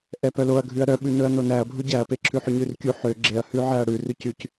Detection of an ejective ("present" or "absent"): absent